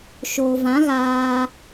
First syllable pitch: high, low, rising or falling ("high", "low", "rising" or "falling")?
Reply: low